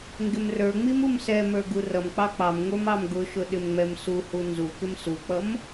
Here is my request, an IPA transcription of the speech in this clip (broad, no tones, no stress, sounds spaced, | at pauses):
ŋ ɡ ɪ m r ə˞ ŋ͡m i m u m s ɛ m ə˞ ɡ u r ʌ m k͡p ɑ k͡p ɑ m ŋʷ ə˞ m ɑ m ɡ ʊ ʃ ʊ ɗ ɪ m ŋ͡m ɛ m s u h u n z u k ɪ m s u k͡p ʌ m